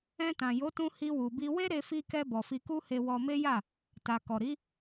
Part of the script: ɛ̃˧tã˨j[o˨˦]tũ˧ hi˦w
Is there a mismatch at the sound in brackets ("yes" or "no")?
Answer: no